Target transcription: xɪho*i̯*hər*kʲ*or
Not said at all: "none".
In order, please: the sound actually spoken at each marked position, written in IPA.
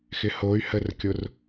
y̯, kʲ

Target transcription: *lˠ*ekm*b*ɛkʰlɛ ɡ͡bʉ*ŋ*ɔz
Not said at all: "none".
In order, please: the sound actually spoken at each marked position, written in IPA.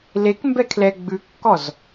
l, b, kː

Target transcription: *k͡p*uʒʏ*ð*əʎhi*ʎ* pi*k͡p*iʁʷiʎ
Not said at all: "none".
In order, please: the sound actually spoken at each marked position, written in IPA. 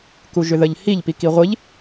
k, ð, ʎ, k

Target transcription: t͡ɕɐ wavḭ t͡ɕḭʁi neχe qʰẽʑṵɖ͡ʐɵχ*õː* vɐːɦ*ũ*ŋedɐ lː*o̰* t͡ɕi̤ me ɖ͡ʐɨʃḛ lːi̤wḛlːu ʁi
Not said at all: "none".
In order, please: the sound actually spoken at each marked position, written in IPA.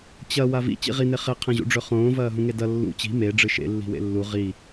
õː, ũ, ṵ

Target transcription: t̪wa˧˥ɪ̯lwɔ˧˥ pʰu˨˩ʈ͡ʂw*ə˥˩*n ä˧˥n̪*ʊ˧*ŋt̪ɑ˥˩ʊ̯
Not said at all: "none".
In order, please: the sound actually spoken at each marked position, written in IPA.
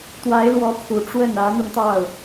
ə˥˩, ʊ˧

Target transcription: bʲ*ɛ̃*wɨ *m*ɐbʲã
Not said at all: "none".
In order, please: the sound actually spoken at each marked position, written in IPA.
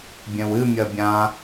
ɛ̃, mʲ

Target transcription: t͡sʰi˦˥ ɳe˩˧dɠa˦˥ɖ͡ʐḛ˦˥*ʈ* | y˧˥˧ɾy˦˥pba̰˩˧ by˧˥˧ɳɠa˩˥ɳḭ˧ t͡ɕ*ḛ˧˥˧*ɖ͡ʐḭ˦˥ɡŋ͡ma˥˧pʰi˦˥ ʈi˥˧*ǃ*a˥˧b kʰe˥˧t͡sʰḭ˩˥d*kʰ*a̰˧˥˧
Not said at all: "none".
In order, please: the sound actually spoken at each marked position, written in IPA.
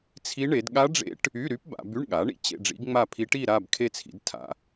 ʈ, ḛ˥˧, ɾ, tʰ

